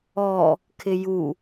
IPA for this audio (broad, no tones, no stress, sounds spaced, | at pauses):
ɔ | kʰ ɪ j u